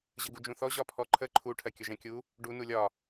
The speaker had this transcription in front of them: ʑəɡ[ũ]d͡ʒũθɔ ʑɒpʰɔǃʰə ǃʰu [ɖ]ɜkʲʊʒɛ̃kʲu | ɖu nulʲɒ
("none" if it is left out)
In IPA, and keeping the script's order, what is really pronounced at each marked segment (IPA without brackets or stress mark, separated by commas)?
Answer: u, ʈʰ